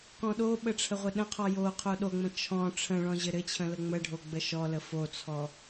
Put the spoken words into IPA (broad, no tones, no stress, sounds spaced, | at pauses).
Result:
k ɔ̃ ɗ o ɓ ə ʈ͡ʂʰ ə ʁʷ ɘ ɗ ə̃ qʰ ɔ j o qʰ o ɗ o ŋ͡m ə̃ t͡ʃʰ ɔ̃ ʈ͡ʂʰ ə̃ ɭ ɔ̃ ʑ ɘ ɾ ɘ t͡ɕʰ ə̃ l ə ŋ͡m ə ɖʱ o ɡ͡b ə ʃ ɔ l ə f o t͡sʰ ɔ